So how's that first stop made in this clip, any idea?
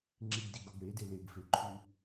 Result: click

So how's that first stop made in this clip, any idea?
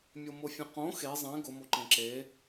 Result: plain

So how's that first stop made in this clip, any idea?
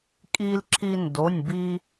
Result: ejective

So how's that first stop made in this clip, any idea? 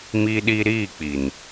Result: implosive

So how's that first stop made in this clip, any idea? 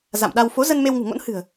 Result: implosive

